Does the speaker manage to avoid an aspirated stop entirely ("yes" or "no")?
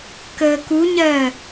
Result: yes